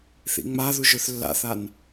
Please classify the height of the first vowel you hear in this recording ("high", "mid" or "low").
high